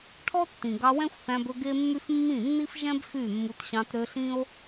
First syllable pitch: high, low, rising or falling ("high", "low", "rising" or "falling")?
high